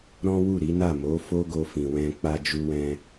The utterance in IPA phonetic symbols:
ɾ ɔ̃˦ w u˦˨ ɾ i˨˦ n a˦˨ m o˨˦ f o˦ ɡ o˧ f ĩ˨ w ɛ̃˧ k͡p a˧ d͡ʒ u˧ w ɛ̃˧

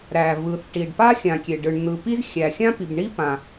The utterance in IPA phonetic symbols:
ɾ æ˩ v ɯ˩ θ ʈ i˩ ɖ p a˥ xʲ ã˩ kʲ e˩ ɖ ɯ˩ ɳ n̪ ɯ˩ p i˥ z xʲ æ˩ xʲ ã˥ p i˩ b ɳ i˥ p ã˩

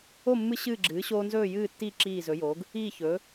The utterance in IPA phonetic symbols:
o˥˨ mː ɨ˦ ɕ ɨː˥˨ ɡ͡ǁ ɨː˩˥ ɕ oː˦ n z ɵː˥˨ j ɨː˥˨ tː i˥˨ ǁ iː˥˨ z ɵ˩˥ j oː˩˥ ɡ | iː˥˨ ç ɵː˩˥

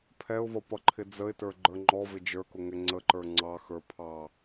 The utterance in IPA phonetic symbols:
pʰ ɛ ʊ̯ v ʌ p ʌ ǃʰ ɪ d͡z ə ɪ̯ t ə˞ ɡ͡ǃ ə˞ ŋ͡ǃ ɔ v ɪ d͡ʒ ə˞ k ʊ ŋ ɛ ŋ͡ǀ ə ǃ ə˞ ŋ͡ǀ ɑ x ə˞ pʰ ɑ

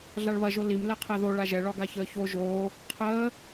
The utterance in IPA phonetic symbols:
ɮ a ɭ β ɐ ʒ o l i m l ɛ qʰ ɛ ð o ɭ a ʒ ɛ ɭ ɒ ɡ a ç əː ç o ʒ oː | qʰ əː

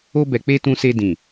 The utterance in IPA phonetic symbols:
o˦ b ɛ˧ k͡p e˦ t ũ˦ s e˦ d ĩ˦˨

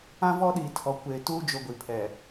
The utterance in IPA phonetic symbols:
ã˦ v ɔ˦ ɗ iː˨ tʰ ɔ˨ kʷ eː˨ t uː˦ d͡ʒ o˨ ɡʷ i˨ pʰ ɛ˨

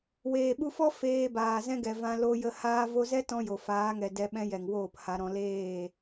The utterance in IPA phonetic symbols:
w eː˨ ɓ u˧ f ɔ˦ f eː˧ b aː˨ z ɛ̃˦ ɡ ɛ˨ v ã˧ l o˧ j ə˧ h aː˧ v o˧ z ɛ˦ t ɔ̃˦ j o˨ f aː˨˦ ŋ ɛ˨ d ɛ˧ ɓ ɛ̃˦ j ɛ˨ ŋ w oː˦˨ p h a˧ ɾ ɔ̃˧ l eː˦˨

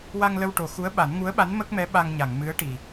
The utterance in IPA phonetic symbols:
w a˧ ŋ l ə˧ w ʈ o˨˩ x u˧˥ ə̯ ɓ a˨˩˦ n ŋ u˧˥ ə̯ ɓ a˧˥ n m ə˦˥ k̚ m ɛ˧˥ ɓ a˧ ŋ ɲ a˨˩˨ ŋ m ɨ˧˥ ə̯ ʈ i˨˩

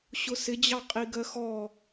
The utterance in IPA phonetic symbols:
ɕ ʊ s ɪ d͡ʑ ɑ qʼ i ɡ ɜ x ɔ

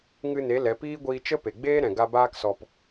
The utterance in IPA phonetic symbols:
ŋ ɨ˧ n e˨˦ l ɛ˨˦ p iː˦ ɡʷ iː˧ t͡ʃ ə˦ p e˨ ɡ͡b eː˦ ɾ ɛ̃˨ ɡ a˧ b aː˦ k s ɔ˧ p

